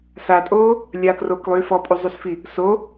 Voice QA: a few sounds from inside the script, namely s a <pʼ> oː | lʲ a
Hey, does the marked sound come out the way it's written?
no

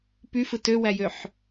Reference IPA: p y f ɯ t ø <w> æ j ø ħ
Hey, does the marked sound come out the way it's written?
yes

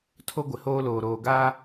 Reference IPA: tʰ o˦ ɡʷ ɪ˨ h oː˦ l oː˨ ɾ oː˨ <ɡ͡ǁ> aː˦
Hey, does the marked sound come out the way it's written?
no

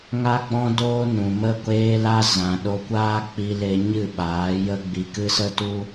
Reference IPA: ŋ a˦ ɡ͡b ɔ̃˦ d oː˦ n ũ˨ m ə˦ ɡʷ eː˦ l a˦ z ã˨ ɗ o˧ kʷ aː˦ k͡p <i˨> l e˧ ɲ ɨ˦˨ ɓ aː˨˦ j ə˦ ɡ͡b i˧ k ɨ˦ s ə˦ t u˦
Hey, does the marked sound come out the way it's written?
no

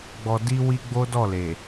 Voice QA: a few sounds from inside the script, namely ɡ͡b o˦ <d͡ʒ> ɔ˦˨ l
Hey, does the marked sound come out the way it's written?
no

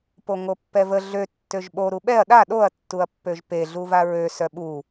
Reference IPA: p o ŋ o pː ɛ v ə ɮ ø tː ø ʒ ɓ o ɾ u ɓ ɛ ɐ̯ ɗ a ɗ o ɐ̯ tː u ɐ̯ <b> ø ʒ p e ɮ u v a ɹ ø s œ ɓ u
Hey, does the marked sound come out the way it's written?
no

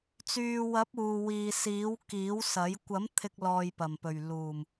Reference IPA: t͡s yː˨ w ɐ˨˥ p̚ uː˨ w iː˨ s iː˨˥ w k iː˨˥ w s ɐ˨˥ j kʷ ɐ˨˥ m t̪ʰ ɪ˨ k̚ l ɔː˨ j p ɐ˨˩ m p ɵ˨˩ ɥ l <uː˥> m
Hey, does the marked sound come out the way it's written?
no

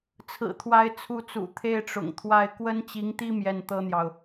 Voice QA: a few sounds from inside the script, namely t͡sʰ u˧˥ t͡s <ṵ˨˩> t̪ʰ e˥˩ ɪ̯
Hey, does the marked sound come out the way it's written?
yes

